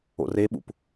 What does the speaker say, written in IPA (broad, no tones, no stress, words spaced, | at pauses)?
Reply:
o̰reɓṵp